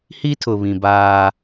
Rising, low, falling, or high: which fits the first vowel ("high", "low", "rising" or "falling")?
high